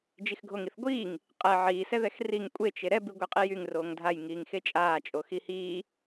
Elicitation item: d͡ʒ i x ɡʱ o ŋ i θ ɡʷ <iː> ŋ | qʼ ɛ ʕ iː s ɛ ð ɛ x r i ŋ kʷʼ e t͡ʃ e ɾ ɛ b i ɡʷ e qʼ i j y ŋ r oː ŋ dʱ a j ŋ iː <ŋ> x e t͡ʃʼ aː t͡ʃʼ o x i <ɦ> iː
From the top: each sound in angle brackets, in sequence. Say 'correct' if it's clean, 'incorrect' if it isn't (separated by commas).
correct, correct, incorrect